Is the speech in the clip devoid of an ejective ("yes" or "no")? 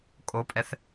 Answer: no